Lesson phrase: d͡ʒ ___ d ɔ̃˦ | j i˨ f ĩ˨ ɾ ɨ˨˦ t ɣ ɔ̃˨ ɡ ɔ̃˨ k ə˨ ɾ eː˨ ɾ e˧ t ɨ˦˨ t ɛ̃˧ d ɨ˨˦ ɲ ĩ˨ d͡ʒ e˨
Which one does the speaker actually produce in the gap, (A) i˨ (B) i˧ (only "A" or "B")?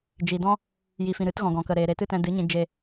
A